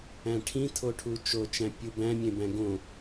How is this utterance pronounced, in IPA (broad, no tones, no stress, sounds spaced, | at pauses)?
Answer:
æ̃ ʈʰ ĩ tʰ o ʈʰ u t͡ʃ o t͡ʃ æ̃ pʲ u b æ̃ mʲ ẽ b æ̃ ɡ õ